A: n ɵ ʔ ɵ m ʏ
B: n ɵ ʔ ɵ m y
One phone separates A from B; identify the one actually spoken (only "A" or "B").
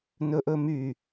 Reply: B